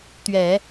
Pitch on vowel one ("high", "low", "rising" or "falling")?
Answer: low